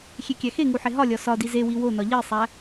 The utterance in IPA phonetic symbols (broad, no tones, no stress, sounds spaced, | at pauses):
xʲ e kʲ æ x e ŋ u ħ e ɦ ɒ lʲ ɒ s ɒ d i z e w i w o n ɒ ʎ i sˤ æ